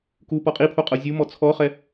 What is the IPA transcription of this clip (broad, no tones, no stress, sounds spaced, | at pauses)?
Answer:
k u p ɔ qʼ i pʰ o qʼ ɤ zʲ u m ɔ t͡sʰ ɔ χ ɛ